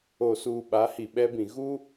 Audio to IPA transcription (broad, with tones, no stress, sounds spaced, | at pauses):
o˨ s uː˨ ɓ a˨˦ h i˨ ɓ ɛ˦ b ĩ˨ ɣ u˦